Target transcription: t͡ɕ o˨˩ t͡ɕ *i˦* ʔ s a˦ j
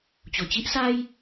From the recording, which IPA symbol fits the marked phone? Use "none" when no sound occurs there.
i˦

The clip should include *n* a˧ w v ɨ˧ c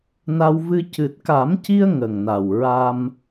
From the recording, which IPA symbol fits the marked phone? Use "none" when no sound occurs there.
n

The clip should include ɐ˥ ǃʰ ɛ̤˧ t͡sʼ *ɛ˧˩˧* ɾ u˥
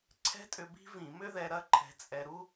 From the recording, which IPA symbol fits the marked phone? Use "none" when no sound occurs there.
ɛ˧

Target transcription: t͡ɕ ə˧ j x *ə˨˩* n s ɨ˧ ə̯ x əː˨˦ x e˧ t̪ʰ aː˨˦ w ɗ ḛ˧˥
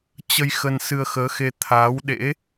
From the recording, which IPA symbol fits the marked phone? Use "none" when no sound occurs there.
ə˧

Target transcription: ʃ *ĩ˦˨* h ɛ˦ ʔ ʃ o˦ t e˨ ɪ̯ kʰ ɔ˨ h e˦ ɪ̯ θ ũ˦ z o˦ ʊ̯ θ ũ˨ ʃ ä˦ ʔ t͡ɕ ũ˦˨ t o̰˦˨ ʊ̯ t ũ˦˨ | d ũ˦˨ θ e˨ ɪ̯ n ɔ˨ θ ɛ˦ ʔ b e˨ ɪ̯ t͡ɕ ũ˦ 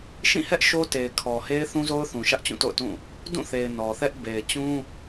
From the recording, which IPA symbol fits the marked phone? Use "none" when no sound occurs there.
ĩ˦˨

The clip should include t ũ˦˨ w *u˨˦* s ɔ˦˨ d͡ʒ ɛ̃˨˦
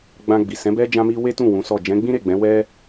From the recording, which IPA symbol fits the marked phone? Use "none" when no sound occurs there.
ũ˨˦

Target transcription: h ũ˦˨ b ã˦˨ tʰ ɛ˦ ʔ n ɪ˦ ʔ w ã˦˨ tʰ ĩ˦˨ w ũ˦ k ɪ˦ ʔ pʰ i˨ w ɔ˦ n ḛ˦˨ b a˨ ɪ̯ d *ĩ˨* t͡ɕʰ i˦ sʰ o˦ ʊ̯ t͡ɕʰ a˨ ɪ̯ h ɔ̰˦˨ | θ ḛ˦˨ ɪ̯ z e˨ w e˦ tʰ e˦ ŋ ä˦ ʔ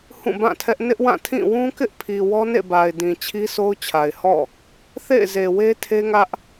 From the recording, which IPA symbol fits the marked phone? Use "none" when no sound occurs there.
ĩ˨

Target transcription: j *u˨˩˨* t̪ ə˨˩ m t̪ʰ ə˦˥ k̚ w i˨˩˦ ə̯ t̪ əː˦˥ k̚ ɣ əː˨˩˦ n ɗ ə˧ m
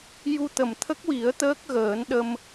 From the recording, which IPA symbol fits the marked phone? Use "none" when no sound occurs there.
u˧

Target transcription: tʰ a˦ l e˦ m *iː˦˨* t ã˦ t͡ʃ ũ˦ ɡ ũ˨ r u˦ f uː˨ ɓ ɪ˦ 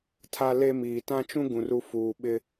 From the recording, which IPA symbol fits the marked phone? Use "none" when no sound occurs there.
iː˨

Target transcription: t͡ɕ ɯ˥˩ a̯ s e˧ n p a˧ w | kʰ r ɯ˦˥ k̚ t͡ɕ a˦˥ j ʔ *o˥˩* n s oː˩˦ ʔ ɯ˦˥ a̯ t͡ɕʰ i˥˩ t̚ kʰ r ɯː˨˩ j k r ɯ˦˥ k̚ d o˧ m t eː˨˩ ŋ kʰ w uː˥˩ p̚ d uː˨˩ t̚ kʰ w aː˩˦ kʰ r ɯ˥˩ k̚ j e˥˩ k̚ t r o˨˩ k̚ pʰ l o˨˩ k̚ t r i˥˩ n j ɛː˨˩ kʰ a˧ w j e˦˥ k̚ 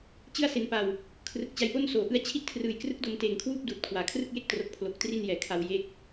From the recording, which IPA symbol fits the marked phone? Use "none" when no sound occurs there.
o˥˩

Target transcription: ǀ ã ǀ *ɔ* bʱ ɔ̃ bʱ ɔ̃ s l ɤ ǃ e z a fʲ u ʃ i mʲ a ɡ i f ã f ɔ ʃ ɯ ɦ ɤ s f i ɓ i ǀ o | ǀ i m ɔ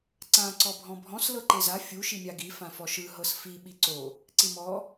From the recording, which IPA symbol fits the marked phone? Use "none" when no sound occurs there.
ɔ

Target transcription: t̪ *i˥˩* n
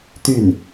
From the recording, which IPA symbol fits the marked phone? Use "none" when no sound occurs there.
y˥˩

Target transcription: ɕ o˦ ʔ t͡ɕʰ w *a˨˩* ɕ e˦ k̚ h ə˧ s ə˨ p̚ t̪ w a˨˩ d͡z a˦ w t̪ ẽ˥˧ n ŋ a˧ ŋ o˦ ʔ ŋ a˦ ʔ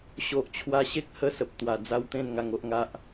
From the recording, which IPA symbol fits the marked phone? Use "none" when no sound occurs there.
a˦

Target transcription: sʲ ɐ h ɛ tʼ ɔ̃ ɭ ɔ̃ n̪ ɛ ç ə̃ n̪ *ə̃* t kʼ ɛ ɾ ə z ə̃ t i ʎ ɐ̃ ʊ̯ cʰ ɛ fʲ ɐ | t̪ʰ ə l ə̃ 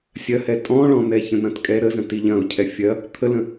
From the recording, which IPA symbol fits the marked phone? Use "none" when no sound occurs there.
ɐ̃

